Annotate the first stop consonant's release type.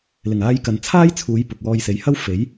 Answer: plain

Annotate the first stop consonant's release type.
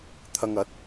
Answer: aspirated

